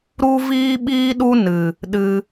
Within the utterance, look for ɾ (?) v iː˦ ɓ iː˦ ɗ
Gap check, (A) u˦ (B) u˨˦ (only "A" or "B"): A